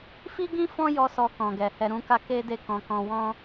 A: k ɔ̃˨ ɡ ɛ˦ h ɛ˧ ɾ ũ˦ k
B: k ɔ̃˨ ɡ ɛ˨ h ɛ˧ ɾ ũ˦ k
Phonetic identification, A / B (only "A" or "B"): B